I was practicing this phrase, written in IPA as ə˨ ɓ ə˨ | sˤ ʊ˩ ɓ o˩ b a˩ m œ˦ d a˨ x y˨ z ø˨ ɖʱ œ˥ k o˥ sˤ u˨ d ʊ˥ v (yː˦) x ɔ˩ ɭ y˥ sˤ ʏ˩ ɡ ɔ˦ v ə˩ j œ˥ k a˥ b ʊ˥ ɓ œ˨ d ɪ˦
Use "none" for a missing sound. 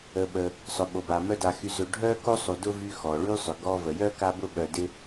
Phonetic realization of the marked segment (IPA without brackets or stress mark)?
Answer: y˦